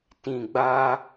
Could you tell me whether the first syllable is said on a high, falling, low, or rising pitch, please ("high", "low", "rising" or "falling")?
low